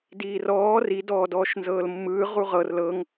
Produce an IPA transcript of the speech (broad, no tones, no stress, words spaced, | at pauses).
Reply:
diːrɔː ri dɔːdɔːʃnzɤːlmːɯː ʁuʁɤr lɤŋ